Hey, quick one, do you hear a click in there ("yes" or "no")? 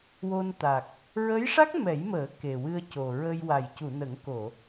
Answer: no